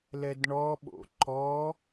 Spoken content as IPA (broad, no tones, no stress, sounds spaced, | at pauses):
l ɛ d ɳ ɔ ɓ o̰ ǃ ɔ